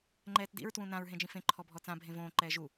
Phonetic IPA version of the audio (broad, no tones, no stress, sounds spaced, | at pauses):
ŋ͡ǃ ɛː t d ḭ ɹ t w ũ n ã ɹ ɦ ẽ d͡ʒ ĩ f ẽ ǃʰ ɔ bʱ ɔ t͡s ã bʱ ẽ v õː ǃ ɛː ʒ u